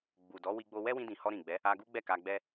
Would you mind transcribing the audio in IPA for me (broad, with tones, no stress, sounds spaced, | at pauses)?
ɡ͡b u˨ d ɔ˨˦ w i˧ ɡ͡b o˧ w ɛ˦ w ĩ˧ d ĩ˨ h ɔ˧ ɾ ĩ˨ ɡ͡b ɛ˨˦ | a˧ ɡ u˦ ɡ͡b ɛ˦˨ k a˧ ɡ͡b ɛ˦